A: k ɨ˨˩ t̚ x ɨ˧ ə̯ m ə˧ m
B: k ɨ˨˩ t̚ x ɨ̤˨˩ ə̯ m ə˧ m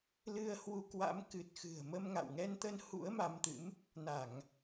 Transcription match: B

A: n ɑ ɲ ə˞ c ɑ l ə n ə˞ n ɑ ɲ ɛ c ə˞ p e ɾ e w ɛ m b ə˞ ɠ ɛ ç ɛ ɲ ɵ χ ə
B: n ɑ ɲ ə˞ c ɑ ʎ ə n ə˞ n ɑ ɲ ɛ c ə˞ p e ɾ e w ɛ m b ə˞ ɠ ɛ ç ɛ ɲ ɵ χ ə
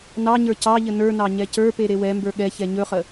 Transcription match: B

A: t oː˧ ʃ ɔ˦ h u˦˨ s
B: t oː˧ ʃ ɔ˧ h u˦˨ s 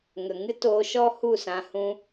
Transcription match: A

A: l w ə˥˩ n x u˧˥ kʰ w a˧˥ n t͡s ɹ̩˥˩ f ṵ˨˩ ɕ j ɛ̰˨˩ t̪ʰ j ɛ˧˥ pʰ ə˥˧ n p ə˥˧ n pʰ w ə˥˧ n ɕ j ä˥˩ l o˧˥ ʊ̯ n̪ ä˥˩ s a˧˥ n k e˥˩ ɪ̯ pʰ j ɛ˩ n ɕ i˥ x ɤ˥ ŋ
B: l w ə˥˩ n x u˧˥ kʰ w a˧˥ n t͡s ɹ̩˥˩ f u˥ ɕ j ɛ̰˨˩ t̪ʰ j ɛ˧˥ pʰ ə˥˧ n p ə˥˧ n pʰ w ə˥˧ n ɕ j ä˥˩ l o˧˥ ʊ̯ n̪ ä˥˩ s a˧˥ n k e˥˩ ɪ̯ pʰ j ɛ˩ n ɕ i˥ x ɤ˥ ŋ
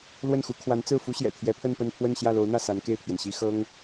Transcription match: B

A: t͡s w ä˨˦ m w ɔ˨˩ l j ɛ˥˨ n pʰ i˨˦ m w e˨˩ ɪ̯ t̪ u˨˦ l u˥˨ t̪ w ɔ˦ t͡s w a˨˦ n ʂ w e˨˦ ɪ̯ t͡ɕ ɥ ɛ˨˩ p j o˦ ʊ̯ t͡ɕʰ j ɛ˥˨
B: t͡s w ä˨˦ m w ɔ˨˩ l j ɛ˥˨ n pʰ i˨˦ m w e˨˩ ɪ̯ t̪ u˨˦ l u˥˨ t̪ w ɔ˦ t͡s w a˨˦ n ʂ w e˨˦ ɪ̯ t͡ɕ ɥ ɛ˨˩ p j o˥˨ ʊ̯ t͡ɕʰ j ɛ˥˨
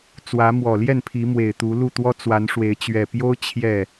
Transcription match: A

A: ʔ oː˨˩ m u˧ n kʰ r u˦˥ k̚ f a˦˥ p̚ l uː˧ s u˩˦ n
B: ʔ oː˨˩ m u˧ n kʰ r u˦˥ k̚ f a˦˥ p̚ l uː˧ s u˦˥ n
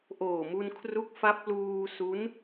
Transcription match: B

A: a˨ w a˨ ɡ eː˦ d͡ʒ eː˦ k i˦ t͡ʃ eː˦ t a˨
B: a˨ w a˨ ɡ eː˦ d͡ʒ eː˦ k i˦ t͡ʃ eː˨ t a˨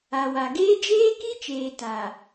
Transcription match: B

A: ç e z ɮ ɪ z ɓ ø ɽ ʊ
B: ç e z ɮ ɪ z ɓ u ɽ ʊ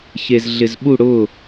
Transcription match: B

